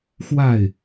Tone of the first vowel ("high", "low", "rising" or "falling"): falling